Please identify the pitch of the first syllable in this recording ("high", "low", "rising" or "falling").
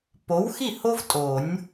rising